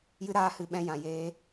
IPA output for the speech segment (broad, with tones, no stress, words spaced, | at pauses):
jɨ˧ɾaː˧hɨ˨ ɓɛ̃˧jã˨ jeː˧